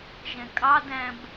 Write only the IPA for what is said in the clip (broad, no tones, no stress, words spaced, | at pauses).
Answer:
ʒɛ̃kʼɑdæ̃b